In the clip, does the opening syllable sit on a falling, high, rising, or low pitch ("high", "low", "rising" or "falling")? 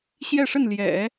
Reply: falling